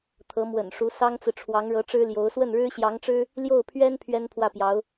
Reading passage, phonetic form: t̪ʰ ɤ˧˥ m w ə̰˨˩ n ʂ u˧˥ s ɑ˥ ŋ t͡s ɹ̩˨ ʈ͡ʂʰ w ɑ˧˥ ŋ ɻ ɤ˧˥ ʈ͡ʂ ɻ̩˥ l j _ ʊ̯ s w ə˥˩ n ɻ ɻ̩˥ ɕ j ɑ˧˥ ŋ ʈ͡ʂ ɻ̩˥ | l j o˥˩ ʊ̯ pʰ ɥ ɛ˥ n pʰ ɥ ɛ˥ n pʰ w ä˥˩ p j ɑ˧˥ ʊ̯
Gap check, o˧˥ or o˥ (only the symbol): o˧˥